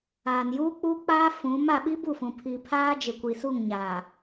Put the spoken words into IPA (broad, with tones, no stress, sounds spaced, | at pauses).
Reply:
aː˨ n j uː˦ k͡p u˦ k͡p aː˦ f ũ˨˦ m a˨ ɓ i˦ b u˦˨ f ũ˨ pʰ i˨ pʰ aː˦ d͡ʒ ɪ˨ kʷ i˨ s u˦˨ ŋ ɲ aː˨